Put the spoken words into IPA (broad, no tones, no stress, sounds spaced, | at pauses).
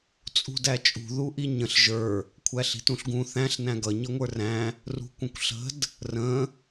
t͡sʼ ṳ d æ t͡ʃʼ ṳ ð u ʔ i ɲ ə̃ ɬ ʒ ə˞ | kʷʰ æ ɬ i̤ t ũ ɬ ɡ ũ θ æ̃ ɬ n æ̃ ɡ ʌ ɲ ʌ ŋʷ ə˞ r æ̃ | r ṳ kʷ ə̃ kʷ ɬ ə̤ d | r ə̃